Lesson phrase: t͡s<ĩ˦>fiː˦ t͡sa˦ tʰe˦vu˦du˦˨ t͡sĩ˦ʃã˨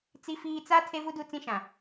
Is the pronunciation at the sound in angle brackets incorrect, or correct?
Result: incorrect